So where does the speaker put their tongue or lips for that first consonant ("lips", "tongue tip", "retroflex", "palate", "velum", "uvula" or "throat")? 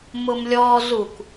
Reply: lips